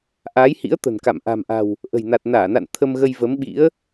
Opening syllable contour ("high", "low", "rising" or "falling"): rising